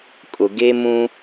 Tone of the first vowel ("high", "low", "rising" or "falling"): low